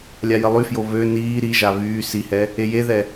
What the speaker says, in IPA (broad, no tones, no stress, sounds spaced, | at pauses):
lʲ a j ə lˠ y f j o β ø n iː ɾ i ʒ a β yː s i h ɛ | e j e ð ɛ